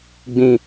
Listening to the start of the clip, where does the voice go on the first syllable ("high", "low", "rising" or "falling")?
low